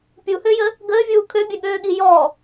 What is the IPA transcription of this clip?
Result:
pʲ u h ø j ə | ɡ əː vʲ uː kʰ ø bʲ œ ɠ øː ɠ i j ɔ

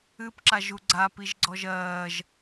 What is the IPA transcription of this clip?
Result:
ɨ p ǁ a ʒ u ɡ͡ǀ a p i ʒ ɡ͡ǀ ɔ ʒ ɜː ʒ

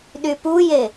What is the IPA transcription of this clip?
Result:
ɗ y p u j e

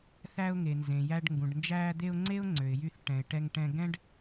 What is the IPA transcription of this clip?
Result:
θ æ˧ ʊ̯ ŋ e˩ n z ẽ˩ j æ˧ ɖ ŋ ɡ ũ˩ ɖ n d͡ʒ æː˧ d̪ e˧ ʊ̯ ŋ͡ǀ e˥ ʊ̯ ŋ͡ǀ ø˩ ɪ̯ j y˧ θ ʈ ɛ̃˩ ɪ̯ ʈ ɛ˧ ŋ ʈ ɛ̃˧ ɡ ɛ̃˥ ɖ

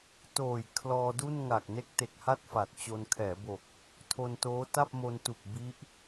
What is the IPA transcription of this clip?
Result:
t oː˨˩ j kʰ l ɔː˧ d u˥˩ n ŋ a˨˩ k̚ n e˦˥ k̚ t e˨˩ k̚ h a˥˩ t̚ f a˨˩ t̚ t͡ɕ o˧ n kʰ ɛː˩˦ b o˨˩ k̚ | tʰ o˧ n t oː˦˥ t a˥˩ p̚ m o˧ n t u˨˩ k̚ b i˦˥ ʔ

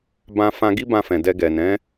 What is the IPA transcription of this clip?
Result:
b ã˧ f ã˧ ɡ i˦ b ã˧ f ɛ̃˨ d ɛ˧ ɡ ɛ˨ n ɛ̃˨˦

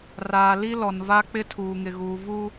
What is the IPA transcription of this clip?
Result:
r aː˨ l i˦ l ɔ˨ n v a˦ k͡p ɪ˦ tʰ uː˨ ŋ ɪ˨ ɣ uː˨ v u˦

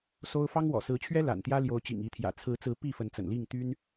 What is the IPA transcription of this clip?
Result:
s o˦ ʊ̯ f ɑ˦ ŋ w ɔ̰˨˩ s ɹ̩˨˦ t͡ɕʰ ɥ ɛ˦ l a̰˨˩ n t̪ j ä˦ l j o˨˦ ʊ̯ t͡ɕ ḭ˨˩ ŋ i˨˦ t̪ʰ j ä̰˨˩ t͡sʰ ɹ̩˨˦ t͡s ɹ̩˨˦ p i˥˨ f ə˨˦ n t͡s ə̰˨˩ n l i˥˨ ŋ t̪ y˦ n

